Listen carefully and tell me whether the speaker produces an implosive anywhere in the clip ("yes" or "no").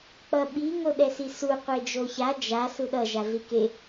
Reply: yes